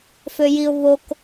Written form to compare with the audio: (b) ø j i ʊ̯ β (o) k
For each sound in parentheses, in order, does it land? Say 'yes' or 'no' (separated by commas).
no, yes